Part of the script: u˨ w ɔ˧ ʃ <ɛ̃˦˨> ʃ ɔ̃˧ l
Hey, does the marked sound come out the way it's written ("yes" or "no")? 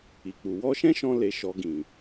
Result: no